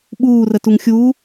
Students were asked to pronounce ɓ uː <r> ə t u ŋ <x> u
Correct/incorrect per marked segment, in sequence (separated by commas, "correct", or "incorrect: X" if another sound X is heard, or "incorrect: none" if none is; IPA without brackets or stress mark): correct, incorrect: xʲ